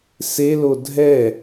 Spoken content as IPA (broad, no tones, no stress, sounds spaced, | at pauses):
s e l o dʱ ɛ